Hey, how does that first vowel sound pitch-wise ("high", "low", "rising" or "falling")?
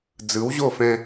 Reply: rising